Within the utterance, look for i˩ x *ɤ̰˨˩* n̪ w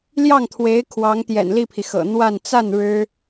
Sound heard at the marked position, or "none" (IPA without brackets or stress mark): ɤ̰˨˩